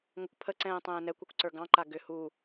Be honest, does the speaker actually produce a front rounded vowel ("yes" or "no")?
yes